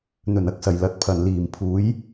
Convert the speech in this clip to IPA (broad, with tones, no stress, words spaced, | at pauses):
n̪ɵ˨˩nɐ˧k̚sɐ˨˩j lɐ˨t̚pʰɐ˨˩nliː˨˩mpʰuː˨˥j